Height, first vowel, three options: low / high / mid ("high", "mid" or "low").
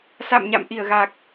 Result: low